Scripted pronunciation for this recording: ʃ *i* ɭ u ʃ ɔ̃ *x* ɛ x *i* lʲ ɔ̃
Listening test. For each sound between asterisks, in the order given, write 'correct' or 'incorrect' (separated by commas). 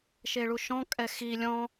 incorrect, incorrect, correct